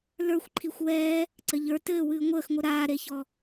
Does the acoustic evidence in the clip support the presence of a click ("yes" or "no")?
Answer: yes